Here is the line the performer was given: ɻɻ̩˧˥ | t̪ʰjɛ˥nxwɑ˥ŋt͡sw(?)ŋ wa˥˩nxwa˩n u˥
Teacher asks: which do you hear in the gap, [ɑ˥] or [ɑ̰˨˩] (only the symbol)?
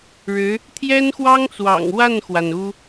ɑ̰˨˩